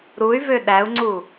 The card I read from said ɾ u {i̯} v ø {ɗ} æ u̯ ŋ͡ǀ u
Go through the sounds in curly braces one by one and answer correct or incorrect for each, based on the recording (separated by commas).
incorrect, correct